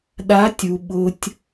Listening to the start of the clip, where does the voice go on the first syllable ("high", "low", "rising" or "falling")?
rising